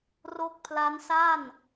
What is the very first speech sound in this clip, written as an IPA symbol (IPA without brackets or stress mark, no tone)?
r